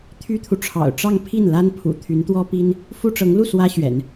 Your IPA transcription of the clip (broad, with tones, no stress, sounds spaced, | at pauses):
t̪ʰ y˥ t̪ʰ u˨ ʈ͡ʂʰ ɑ̰˨˩ ʊ̯ ʈ͡ʂ ɑ˥˧ ŋ pʰ i˥˩ n l a˥ n pʰ ṵ˨˩ t̪ʰ y˧˥ n t̪ w ɔ˥ p i˥ n | f u˥ ʈ͡ʂ ɤ˧˥ ŋ l u˥˩ s w ä˥ ɕ ɥ ɛ̰˨˩˦ n